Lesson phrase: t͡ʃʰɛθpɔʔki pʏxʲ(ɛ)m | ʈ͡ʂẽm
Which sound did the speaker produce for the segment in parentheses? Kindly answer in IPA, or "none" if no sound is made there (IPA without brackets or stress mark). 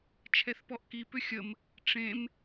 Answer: ə